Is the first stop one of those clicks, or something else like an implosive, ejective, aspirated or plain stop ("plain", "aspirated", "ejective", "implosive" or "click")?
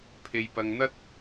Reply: aspirated